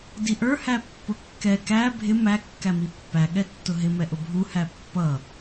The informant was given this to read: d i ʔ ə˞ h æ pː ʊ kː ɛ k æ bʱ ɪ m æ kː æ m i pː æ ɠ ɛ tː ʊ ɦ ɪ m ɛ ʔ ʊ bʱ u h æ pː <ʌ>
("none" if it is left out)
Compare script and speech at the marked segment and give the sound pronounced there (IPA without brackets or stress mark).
ʌ